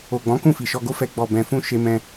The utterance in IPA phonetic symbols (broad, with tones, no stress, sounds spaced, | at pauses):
o˨ ɡ͡b ɔ̃˨˦ k ũ˦˨ f i˨ ʃ ɔ˧ ɡ o˦ f ɛ˧ ɡ͡b ɔ˨ b ɛ̃˨ f ũ˧ ʃ e˧ m ɛ̃˧